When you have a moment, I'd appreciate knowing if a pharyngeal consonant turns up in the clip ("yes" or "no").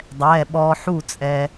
yes